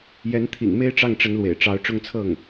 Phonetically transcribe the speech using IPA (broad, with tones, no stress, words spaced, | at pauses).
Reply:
jɛ˧˥nt̪ʰḭ˨˩ŋme˥ɪ̯ʈ͡ʂɑ˥˩ŋ ʈ͡ʂə˧˥nlwḛ˨˩ɪ̯ʈ͡ʂɑ˧˥ʊ̯ ʈ͡ʂʊ˥˧ŋt͡sʰɤ˥˩ŋ